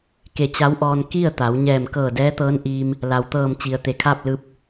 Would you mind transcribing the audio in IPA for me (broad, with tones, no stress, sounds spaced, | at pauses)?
k e˧˩ t͡ɕ a˧˥ w ʔ ɔː˧ n k i˥˨ ə̯ t̪ a˩˧ w ɲ ɛː˧˩ m k ɤː˧˩ d ɛː˧˥ t̪ ɤː˧˥ n ʔ iː˧ m | l a˩ w t̪ ɤː˧˩ m t͡ɕ i˩ ə̯ t̪ e˩˧ kʰ aː˥˨ p̚ l ɯː˧˥ p̚